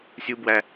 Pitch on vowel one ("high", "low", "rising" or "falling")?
high